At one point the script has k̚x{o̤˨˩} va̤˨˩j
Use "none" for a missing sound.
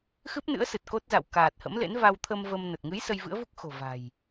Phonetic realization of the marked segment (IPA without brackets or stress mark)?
o̤˨˩